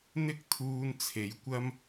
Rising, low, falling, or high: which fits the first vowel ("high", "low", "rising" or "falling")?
high